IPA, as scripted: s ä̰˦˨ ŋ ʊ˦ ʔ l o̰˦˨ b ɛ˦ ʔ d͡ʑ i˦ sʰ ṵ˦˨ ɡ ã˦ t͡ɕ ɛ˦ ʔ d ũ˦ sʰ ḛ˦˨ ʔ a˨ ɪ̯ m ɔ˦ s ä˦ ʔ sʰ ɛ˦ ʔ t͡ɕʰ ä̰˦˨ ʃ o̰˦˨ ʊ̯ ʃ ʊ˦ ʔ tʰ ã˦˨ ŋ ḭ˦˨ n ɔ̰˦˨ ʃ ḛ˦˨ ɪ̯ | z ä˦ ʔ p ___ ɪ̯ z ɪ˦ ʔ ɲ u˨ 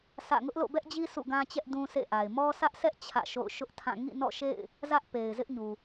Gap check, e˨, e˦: e˨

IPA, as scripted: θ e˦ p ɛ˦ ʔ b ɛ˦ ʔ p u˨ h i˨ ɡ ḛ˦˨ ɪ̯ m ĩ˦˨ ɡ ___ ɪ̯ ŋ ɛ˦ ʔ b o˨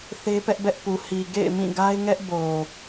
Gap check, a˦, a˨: a˦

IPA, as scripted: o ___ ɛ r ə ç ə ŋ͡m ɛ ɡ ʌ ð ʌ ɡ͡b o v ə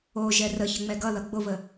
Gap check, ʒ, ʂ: ʒ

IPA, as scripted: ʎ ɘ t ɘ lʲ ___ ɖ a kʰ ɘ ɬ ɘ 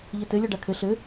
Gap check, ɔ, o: ɔ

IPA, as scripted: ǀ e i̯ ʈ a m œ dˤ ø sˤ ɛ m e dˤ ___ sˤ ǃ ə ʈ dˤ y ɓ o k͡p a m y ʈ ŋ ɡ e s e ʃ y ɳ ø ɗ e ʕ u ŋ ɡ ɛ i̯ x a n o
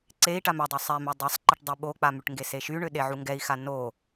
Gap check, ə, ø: ə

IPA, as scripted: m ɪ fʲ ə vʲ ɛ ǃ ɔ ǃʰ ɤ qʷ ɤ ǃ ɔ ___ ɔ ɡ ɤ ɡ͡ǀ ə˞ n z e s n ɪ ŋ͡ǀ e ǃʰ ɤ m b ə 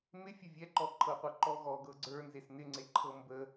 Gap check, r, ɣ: ɣ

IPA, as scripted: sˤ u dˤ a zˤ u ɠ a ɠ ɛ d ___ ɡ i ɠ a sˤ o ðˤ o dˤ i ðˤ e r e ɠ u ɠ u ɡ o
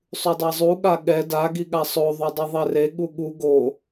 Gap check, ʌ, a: a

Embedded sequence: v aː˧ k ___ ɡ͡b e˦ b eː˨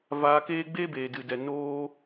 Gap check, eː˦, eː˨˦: eː˦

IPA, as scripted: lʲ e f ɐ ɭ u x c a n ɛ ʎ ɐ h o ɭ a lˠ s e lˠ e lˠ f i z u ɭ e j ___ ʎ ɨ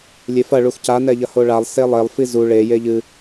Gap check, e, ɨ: e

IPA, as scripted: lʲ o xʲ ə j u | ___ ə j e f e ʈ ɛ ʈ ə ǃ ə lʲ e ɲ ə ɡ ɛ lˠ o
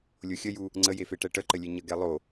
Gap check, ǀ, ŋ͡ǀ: ŋ͡ǀ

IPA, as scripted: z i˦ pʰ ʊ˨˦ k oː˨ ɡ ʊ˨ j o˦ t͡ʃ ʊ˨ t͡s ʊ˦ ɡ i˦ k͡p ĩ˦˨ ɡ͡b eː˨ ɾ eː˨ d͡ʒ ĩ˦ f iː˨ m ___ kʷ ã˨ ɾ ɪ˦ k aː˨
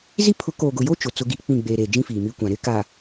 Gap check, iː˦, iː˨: iː˦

